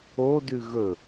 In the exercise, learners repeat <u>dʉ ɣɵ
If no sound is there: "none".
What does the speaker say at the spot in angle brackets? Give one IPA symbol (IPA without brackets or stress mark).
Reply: o